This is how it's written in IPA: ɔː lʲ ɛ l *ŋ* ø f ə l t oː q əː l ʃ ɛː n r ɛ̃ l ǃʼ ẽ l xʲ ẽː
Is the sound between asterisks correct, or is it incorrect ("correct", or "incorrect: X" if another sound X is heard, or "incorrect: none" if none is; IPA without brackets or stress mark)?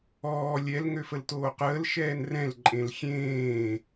correct